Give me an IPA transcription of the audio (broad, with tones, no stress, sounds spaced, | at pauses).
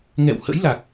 ŋ ɛ̰˧˨ w h ə̰˧˥ j l a˨˩ k̚